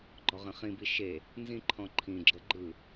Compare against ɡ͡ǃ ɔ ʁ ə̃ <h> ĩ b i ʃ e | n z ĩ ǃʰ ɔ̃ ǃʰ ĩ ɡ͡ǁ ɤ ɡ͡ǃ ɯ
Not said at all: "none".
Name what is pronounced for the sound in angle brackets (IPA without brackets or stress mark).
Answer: χ